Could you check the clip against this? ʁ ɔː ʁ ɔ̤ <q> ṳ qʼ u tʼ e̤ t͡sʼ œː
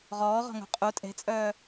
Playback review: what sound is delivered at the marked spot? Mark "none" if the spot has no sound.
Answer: ŋ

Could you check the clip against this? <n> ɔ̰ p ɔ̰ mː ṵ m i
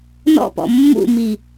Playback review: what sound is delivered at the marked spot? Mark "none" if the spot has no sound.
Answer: n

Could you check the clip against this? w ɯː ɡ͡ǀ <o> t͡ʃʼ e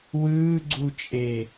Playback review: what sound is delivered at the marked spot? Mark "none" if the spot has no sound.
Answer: u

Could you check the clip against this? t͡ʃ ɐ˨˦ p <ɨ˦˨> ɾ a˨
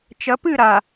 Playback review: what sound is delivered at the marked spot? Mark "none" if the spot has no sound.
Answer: ɨ˦˨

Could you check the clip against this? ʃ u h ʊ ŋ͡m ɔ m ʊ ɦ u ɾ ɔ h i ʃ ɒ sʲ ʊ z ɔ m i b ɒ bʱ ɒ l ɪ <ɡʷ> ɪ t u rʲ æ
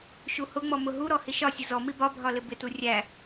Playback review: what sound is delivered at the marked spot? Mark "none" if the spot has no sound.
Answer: b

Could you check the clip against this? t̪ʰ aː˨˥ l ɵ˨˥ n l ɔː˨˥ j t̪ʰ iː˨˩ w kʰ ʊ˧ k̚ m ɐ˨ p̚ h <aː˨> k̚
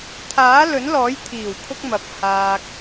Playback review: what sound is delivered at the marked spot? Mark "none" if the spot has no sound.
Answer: aː˧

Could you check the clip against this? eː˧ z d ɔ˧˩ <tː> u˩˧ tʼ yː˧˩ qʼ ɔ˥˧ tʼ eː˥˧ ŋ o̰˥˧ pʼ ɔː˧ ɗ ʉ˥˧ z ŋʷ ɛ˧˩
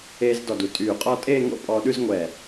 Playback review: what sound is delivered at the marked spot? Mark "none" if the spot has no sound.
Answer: d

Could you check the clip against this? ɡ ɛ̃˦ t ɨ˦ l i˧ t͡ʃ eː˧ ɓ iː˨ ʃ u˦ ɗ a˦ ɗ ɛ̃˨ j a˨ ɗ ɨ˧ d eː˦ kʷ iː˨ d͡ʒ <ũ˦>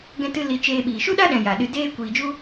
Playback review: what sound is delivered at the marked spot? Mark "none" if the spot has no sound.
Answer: u˦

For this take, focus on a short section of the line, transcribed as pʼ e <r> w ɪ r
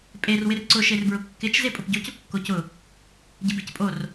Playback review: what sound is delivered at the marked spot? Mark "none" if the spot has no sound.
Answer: r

